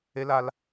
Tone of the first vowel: high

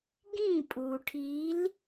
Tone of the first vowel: falling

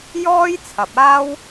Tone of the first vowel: high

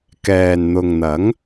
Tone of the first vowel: low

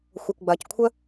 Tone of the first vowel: low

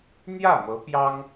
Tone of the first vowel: falling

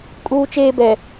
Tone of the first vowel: high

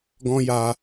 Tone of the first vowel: high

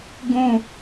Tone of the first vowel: high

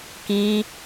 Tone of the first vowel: high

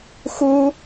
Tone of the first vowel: high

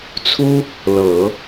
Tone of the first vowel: high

